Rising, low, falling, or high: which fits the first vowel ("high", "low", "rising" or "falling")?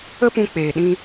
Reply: high